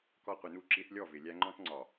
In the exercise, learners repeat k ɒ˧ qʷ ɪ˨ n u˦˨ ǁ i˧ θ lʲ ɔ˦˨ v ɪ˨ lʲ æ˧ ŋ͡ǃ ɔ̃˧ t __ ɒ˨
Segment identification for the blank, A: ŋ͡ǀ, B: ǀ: A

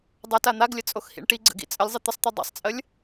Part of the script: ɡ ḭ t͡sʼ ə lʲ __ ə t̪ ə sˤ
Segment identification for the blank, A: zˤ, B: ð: A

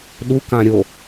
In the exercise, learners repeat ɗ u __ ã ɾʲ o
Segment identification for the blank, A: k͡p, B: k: B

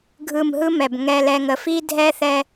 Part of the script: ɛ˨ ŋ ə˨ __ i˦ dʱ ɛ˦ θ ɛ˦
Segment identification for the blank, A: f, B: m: A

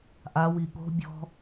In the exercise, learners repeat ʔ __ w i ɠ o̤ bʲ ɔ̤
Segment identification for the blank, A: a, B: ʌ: A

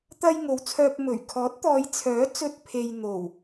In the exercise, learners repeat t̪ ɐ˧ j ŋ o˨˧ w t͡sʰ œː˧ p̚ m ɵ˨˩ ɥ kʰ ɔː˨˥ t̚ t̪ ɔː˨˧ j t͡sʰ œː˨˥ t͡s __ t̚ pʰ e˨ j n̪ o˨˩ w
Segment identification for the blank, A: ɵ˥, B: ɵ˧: B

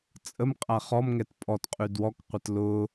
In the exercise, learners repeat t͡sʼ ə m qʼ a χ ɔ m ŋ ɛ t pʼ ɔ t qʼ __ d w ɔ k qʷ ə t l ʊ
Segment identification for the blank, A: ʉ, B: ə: A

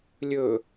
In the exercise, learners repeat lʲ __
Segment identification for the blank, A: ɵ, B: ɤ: A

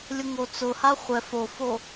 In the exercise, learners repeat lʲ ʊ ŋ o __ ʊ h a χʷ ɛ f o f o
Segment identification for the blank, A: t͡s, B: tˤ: A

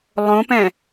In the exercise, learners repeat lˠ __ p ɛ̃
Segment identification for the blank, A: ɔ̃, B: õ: B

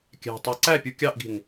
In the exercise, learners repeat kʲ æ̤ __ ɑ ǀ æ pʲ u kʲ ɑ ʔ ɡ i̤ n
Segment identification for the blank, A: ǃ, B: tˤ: B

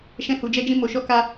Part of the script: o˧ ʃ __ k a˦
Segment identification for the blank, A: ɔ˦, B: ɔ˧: A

